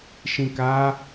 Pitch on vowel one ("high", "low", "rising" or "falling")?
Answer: low